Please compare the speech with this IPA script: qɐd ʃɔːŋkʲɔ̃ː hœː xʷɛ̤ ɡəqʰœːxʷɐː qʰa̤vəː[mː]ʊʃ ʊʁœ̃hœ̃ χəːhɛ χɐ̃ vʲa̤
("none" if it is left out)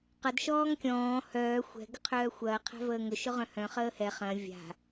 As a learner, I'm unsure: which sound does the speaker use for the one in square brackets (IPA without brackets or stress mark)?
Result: ŋ